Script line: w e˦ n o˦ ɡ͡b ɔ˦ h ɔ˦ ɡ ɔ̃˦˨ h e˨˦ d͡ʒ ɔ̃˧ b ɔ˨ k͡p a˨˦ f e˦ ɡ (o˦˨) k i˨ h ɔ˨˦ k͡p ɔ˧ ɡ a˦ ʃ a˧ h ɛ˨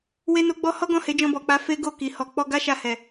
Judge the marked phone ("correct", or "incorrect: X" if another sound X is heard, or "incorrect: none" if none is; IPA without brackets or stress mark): correct